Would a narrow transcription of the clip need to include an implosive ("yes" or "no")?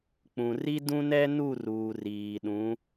yes